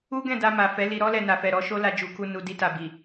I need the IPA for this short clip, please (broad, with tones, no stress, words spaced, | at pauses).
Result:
u˦ɡɛ̃˦˨da˧ ma˨fɛ˨˦ li˧ɾɔ˦lɛ˧ na˨fɛ˨ɾɔ˨˦ʃo˦ la˧d͡ʒu˨ku˧ nu˨di˧ta˨ bi˨